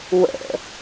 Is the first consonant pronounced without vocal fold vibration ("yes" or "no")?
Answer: no